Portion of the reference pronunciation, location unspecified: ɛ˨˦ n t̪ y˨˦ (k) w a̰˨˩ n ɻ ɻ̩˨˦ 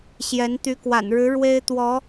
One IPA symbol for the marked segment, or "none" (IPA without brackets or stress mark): k